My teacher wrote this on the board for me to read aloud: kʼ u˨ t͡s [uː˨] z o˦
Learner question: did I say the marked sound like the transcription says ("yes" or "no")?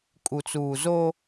yes